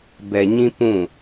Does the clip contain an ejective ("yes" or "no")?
no